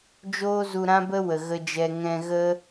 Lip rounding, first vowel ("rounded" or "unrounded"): rounded